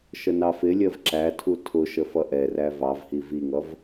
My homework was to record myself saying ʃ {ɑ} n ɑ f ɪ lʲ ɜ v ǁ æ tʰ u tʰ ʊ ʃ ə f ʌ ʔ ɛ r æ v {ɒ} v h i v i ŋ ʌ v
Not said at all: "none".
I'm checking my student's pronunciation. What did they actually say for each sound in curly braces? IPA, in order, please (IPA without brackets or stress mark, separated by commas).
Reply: ə, ɑ